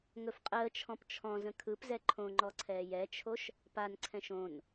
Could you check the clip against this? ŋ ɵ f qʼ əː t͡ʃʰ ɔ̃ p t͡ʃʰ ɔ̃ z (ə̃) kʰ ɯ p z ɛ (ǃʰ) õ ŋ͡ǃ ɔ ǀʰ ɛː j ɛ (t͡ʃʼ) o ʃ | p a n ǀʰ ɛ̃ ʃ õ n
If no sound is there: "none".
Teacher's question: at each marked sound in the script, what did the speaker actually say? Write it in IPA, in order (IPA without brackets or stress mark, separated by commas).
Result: ə̃, ǃʰ, t͡ʃʰ